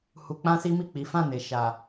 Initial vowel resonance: oral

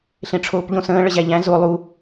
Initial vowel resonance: nasal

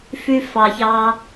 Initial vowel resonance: oral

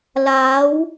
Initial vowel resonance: oral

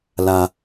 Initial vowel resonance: oral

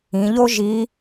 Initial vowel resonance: nasal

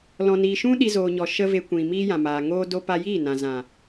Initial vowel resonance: nasal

